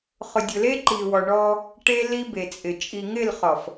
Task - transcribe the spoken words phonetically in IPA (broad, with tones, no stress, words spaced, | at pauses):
χʊ˨dʲʊ˨le˦ǃi˨ wɔ˨ɳɔ˦ | ʈe˦li˦ be˨t͡sʼɪ˨ t͡ʃʼi˨ŋɪ˦˨lχɔ˨f